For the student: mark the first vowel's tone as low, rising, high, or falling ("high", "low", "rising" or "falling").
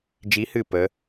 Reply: rising